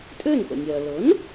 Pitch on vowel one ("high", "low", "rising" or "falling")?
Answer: falling